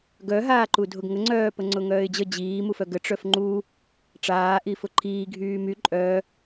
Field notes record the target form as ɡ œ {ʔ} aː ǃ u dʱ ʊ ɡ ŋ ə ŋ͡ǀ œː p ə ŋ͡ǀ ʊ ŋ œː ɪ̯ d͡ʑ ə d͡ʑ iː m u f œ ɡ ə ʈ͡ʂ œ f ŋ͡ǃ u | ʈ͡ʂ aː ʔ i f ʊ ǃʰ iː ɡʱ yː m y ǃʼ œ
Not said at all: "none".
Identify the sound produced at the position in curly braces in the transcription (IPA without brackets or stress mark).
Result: ɦ